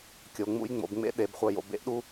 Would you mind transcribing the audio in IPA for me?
kʲ o˩ ŋ͡m ṵ˧ j ŋ͡m o̰˩˧ b ŋ͡m ḛ˥ ɗ e˩˧ b χʷ œ˧ j o̰˧ b ḛ˧˥ ʔ ɗ u˥

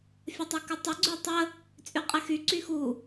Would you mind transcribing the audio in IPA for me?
fʲ ə tˤ y k ɨ tˤ ɨ ɡ͡ǀ y tˤ ə | t͡sʼ y qʼ ɛ x y ǀ y x u

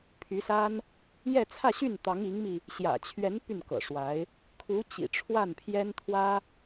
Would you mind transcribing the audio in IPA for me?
pʰ y˧˥ s a˥ n | j ɛ˥˧ t͡sʰ ä˥˧ ɕ y˥˩ n t̪ ɑ˧˥ ŋ i˧˥ ŋ m i˧ | ɕ j ä̰˨˩ t͡ɕʰ ɥ ɛ˧˥ n p y˥˩ n k ɤ̰˨˩ ʂ w a˧˥ ɪ̯ | kʰ u˧˥ t͡ɕ ḭ˨˩ ʈ͡ʂʰ w a˥˩ n pʰ j ɛ˥ n t̪ʰ w ä˥

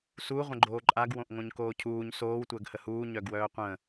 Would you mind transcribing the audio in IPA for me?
s u ʁʷ ə̃ ɡ͡ǃ oː ǃʼ a ɡ w õ ʔ ŋ õ ɲ k oː cʰ uː ɲ s oː w tʷ əː ɡ h ə h uː ɲ œ ɡ w œː qʷ ə̃

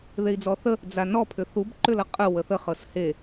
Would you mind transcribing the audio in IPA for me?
ð e i̯ d͡z ɔ θ ə | d͡z a n ɔ pʰ ʏ θ u b ǃ ʏ l ʌ qʼ ə w ə θ ə χ ɤ s h e

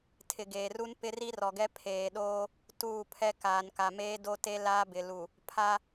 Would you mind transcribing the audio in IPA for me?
tʰ ɪ˨ ɡ eː˨ r u˦ n p ɪ˦ r i˦ r ɔ˨ ɡ ɛ˦ pʰ eː˨ ɗ oː˦ | t uː˦˨ pʰ ɛ˦ k aː˨ n k a˨ m eː˦ d o˦ t e˦ l aː˦ b ɪ˨ l u˨ | pʰ a˦

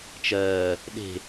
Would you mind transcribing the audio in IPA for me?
t͡ʃ ɜː | ɗ e̤

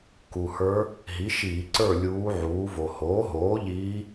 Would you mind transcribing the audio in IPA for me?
k u˩ h ə˞˧˥ | ɦ i˩˥ ʃ iː˧˩˧ ǀ ə˞˥˨ lʲ uː˧˥ ʕ uː˩˥ v o˩ h oː˩˥ ɦ oː˩˥ ʎ iː˧˥

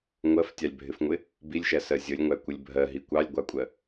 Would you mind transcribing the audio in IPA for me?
ŋʷ ɜ f tʲ ɑ lʲ bʱ ɪ f ŋʷ ɪ | b i lʲ ʃ æ s ɜ zʲ ə lʲ ŋʷ æ kʷ ə lʲ bʱ ɜ ɦ i kʷ ɑ lʲ ɡʷ ɑ kʷʼ ɜ

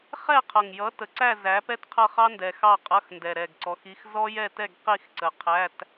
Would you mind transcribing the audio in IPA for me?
χ ɛ˥˧ qʰ ʌ˨˩ ŋ j ʌ˨˥ t ə˨˩ ǀ æ˥˧ z æ˨˥ p ɛ˥ t qʰ ʌ˥˧ χ ɑ˥ n d ɛ˨˩ x ɑ˥˧ qʼ ʌ˧˥˧ x n d ɛ˨˩ ɾ ɛ˨˩ ɡ ǀ ɔ˨˥ x i˧˥˧ x z ɔ˥ j ɛ˥˧ t ɛ˥˧ ɡ q i˥˧ x ǀ ə˨˩ qʰ æ˧˥˧ t

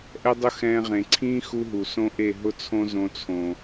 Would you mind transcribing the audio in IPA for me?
ʔ ɛ˦ dˤ ʊ˦ x ɛ̃ː˧ ʁ ẽ˨ ǀʰ ĩː˦ x u˦ ɦ u˨ s õ˦ ʔ e˦˨ ɦ ʊ˦ t͡sʰ õ˦ z õ˧ t͡sʰ õ˨

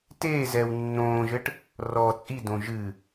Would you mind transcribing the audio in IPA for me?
t eː z ɛː w nː õː ʒ ɘ ʈ | r ɔː t͡sʼ i d õ ʒ ɨ

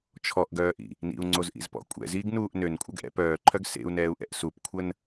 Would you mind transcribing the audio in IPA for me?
t͡ʃʰ ɔ ʔ ɡ œː ʔ ḭ | n ḭ u̯ ŋ͡ǀ o z ʔ ḭ z p ɔ̰ kʷʼ ɛ̰ z iː ɡ n uː ʔ n ø n kʷʼ ə ɡ ʔ ɛ̰ p œː ǃʰ œ ɡ s ḛ u̯ n ɛː u̯ ʔ ɛ̰ ʔ s u p kʷʰ ə n

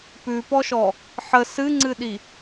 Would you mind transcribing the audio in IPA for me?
p ʉ p ɔ ʃ ɔ | ħ ə s ɨ ŋ͡ǀ ɨ ɗ i

